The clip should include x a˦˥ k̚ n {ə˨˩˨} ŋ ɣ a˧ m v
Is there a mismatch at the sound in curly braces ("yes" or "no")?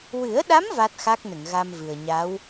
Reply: no